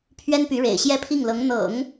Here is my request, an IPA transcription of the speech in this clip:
pʰ ɥ ɛ˥ n p y˧˥ ɻ ḛ˨˩ ɪ̯ ɕ j ɛ˥ pʰ i˥˩ ŋ l ɤ˧˥ ŋ n̪ ɤ̰˨˩˦ ŋ

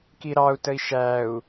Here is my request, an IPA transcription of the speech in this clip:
k i ɾ ɑ u̯ t ə i̯ ʃ æ u̯

